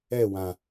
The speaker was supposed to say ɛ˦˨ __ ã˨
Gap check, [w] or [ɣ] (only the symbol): w